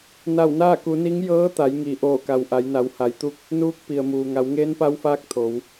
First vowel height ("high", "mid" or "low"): low